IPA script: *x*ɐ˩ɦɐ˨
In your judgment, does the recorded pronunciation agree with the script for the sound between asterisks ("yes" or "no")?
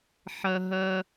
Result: no